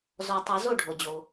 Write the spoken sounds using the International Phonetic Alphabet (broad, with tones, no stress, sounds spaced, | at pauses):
z ɔ˨˩˦ tˤ ɐ˨˩˦ z o˥˩ ɖʱ o˩ d͡ʑ o˩